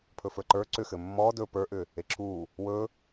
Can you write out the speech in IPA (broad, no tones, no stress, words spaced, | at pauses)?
pʰɵfə˞ǃə˞ ǀʏxɘ mːɔ dɵ pə˞ʔʏ | eǁu | wɵ